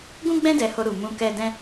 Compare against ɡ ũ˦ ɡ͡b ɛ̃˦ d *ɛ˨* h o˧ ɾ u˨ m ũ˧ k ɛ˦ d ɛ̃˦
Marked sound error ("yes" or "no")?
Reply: yes